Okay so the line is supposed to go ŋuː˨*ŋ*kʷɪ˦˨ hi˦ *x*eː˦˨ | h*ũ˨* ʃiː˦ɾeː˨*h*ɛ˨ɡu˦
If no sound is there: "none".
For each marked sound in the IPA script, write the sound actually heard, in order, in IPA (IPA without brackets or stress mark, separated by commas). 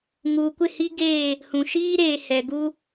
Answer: none, ɡ, ũ˨, h